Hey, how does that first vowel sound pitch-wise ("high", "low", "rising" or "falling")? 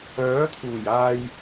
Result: rising